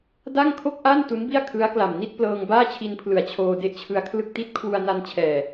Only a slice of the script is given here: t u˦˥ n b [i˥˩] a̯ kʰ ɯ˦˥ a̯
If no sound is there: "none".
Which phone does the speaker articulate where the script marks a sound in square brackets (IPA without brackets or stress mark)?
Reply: i˥˩